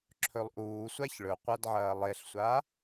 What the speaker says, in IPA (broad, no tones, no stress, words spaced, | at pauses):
ǁʰɵlˠʔuːsʷaç ɭɵqʷadʕɐː lˠeɬsʷa